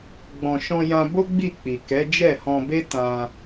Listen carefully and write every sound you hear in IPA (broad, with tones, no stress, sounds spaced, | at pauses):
ɡ͡b ɔ̃˨ ʃ ɔ̃˧ j ã˧ b o˦ ɡ͡b i˦˨ k͡p i˨ k ɛ˨˦ d͡ʒ ɛ˦˨ h ɔ̃˧ b e˦ t ã˧